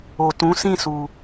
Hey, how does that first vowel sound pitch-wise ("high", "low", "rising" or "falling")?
low